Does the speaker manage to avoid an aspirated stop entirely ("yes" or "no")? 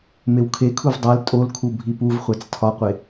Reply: no